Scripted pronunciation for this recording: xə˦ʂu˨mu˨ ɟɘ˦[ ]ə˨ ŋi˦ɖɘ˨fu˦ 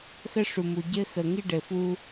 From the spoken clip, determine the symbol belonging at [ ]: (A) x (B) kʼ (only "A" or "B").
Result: A